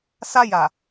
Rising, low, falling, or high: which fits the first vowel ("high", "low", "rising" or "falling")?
high